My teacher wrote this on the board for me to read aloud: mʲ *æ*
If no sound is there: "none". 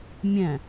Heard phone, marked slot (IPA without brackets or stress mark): æ̃